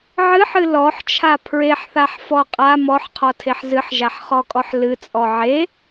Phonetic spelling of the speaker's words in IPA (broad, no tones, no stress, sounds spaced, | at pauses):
ʕ ɨ ħ ɨ l ɔ ħ t͡ʃʰ a pʰ ɹ e ħ θ a ħ f ɔ qʼ a m ɔ ħ qʰ ɔ tʰ e ħ z ɨ ħ ʒ a ħ χ ɔ kʼ ɔ ħ l ɨ t͡sʼ ɔ ʕ e